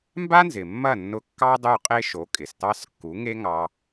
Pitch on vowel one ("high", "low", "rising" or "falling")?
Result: high